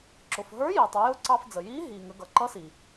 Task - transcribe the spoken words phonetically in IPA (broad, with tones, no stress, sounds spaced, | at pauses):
ǁ ʊ˩ f ɦ ə˞˧˥ j iː˩ tˤ ɪ˩˧ j ʊ˧˥ ǀ ɑ˧ f d͡z ə˩ j iː˧˥ ɦ iː˩ ŋ ə˩˧ ɡ ʌ˩ ǃ ʌ˧˥ s i˩